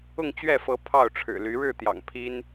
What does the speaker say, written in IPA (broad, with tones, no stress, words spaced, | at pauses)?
ʊ˥˨ŋt͡ɕɥɛ˥˨fɤ˨˦ pʰɑ˥˨ʊ̯ʈ͡ʂʰɻ̩˨˩ly˨˦ ɻɻ̩˥˨t̪jɑ̰˨˩ŋ pʰi˦n